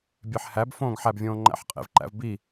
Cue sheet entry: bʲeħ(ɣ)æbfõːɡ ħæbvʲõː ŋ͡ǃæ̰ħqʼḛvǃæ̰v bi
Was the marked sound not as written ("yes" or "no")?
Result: yes